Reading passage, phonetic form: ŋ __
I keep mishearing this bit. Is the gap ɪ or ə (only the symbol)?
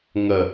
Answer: ə